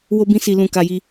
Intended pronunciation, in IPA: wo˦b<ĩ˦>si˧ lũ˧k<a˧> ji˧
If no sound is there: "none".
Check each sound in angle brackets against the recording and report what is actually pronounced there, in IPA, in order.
ĩ˦, a˧

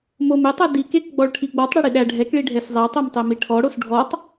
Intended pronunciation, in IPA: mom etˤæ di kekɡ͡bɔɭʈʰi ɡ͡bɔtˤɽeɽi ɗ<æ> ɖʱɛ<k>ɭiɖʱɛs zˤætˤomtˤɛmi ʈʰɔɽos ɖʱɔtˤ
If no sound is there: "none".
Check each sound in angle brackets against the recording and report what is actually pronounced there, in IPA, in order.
æ, k

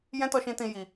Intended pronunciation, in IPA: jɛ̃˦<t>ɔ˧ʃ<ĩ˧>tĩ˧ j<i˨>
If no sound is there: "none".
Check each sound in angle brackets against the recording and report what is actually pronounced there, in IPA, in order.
t, ĩ˧, i˧

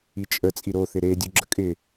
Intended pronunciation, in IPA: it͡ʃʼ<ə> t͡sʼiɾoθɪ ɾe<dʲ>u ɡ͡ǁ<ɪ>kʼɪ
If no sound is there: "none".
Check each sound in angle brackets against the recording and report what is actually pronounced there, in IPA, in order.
ə, dʲ, ə

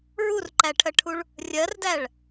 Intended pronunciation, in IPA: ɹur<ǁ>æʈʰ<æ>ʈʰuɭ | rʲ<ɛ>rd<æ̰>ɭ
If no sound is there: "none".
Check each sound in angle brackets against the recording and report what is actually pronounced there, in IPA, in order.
ǃ, ɜ, ɜ, æ

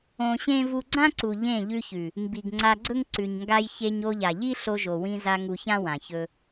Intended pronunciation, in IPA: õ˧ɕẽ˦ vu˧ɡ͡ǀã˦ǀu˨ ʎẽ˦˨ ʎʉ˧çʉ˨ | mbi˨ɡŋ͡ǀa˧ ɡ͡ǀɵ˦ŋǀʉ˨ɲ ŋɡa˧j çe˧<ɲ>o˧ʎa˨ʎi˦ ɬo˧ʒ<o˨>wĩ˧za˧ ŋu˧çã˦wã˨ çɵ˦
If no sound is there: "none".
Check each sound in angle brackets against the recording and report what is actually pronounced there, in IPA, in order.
ɲ, o˨

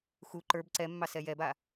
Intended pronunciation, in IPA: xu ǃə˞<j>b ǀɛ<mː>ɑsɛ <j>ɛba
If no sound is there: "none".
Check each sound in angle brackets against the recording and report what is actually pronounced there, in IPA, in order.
none, mː, j

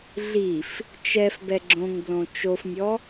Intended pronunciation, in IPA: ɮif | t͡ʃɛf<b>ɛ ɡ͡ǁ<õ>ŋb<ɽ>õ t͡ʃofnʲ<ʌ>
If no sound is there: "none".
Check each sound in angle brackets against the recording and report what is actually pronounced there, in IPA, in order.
b, õ, l, ɔ

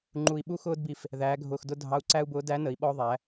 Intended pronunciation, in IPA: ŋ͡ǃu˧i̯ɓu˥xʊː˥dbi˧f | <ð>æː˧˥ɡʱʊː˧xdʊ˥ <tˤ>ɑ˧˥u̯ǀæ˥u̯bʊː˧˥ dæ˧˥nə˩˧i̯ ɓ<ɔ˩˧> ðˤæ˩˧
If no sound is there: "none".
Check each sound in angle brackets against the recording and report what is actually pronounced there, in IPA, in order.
ð, dʱ, ɔ˧

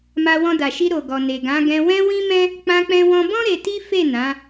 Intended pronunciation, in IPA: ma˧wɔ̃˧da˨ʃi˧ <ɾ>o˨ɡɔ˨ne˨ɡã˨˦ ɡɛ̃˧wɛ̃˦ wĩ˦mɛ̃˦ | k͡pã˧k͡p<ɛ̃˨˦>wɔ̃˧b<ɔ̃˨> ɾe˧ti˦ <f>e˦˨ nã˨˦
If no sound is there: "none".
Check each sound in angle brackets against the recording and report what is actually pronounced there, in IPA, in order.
ɾ, ɛ̃˧, ɔ̃˦, f

